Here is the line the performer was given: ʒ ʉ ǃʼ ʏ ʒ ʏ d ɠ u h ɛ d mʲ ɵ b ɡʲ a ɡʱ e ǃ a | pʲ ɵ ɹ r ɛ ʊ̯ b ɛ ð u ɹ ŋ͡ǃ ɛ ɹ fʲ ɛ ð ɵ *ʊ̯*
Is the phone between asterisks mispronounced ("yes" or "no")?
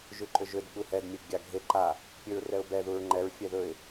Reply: yes